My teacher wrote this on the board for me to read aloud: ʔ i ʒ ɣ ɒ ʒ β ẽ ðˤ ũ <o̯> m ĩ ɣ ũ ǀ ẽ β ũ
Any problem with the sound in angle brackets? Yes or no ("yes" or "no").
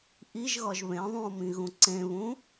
no